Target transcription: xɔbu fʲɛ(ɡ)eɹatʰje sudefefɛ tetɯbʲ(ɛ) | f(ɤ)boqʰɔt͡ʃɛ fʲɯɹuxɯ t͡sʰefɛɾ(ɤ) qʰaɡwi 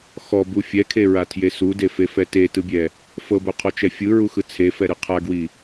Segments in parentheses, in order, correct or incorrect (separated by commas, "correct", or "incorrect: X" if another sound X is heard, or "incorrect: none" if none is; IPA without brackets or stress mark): incorrect: kʰ, correct, correct, incorrect: ɯ